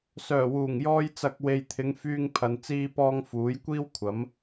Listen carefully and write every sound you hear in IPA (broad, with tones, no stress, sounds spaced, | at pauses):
s œː˨˩ w uː˨˩ ŋ j ɔː˧ j t͡s ɐ˨ k̚ w e˨ j t̪ʰ ɪ˨˧ ŋ f yː˧ ŋ pʰ ɐ˨ n t͡s iː˧ p ɔː˧ ŋ f uː˨˥ j kʷ iː˥ w kʷʰ ɐ˨˥ m